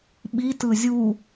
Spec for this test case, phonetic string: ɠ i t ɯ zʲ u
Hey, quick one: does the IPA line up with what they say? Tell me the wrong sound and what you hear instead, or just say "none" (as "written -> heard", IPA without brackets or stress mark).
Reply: ɠ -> ɓ